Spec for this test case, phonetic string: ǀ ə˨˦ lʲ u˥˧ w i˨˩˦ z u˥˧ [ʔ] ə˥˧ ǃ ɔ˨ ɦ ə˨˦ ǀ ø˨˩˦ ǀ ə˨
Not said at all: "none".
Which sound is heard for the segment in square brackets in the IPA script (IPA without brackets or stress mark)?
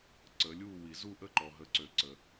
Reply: ʔ